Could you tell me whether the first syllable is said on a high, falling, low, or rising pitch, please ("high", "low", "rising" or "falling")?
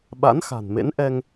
rising